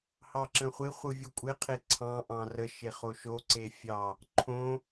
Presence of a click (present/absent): present